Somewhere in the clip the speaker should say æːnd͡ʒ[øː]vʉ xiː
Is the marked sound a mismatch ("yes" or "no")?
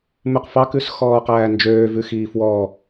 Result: no